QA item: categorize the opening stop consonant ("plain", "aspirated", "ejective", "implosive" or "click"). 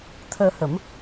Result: aspirated